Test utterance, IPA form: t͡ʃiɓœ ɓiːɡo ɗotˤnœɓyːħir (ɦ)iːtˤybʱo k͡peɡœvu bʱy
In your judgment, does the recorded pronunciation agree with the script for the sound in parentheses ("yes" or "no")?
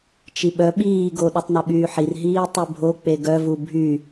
yes